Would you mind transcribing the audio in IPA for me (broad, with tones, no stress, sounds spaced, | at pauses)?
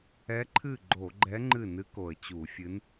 ɛ˧˥ ǃʰ ɨ˥˩ ɡ͡ǃ o˧˩˧ ɡ͡ǃ ɛ˧˥ ŋ͡ǃ ɨ˥˩ n ɨ˧˥ k o˨˩ ə̯ t͡ɕ u˧˩˧ fʲ ɨ˧˥ n